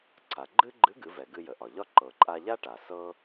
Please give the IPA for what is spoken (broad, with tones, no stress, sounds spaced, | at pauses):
ǀʰ a˩ ɡ͡ǃ ɨ˥ ɡ͡ǃ ɨ˧˥ ɡ ɨ˩˧ v ɛ˩ ɡ ɨ˧ j ə˩ ʔ ɒ˩ ʎ ɒ˥ ǃ ɤ˩ ǃʼ a˧ ʎ a˥ ʈ a˩ s ɤ˥